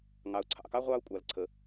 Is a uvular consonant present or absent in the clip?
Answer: present